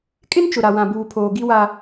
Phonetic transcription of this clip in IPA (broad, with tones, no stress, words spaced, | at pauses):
kʼɪ˦nt͡ʃʊ˨ɾa˨wã˨ buː˨pʰoː˨ ɡi˦wa˦